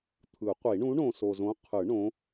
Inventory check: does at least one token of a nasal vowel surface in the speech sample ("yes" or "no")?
yes